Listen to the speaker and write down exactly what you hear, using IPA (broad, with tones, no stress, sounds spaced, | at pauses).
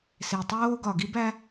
s e˩ tˤ oː˧ ɡ ɒ˩ ɡ i˧ b æ˧